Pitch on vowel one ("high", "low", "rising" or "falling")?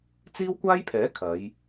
high